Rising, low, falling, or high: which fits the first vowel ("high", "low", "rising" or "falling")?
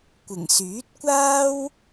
low